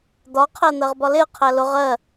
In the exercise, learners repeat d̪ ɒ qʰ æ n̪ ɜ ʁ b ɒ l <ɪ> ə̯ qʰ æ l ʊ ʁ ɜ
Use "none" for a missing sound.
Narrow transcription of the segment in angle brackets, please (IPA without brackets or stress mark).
ɪ